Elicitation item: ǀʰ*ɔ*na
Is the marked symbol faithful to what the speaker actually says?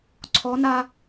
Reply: yes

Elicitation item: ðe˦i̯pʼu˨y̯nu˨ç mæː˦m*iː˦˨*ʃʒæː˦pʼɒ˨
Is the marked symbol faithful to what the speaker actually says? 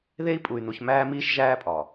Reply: no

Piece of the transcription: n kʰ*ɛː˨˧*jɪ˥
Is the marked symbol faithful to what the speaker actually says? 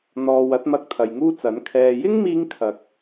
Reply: no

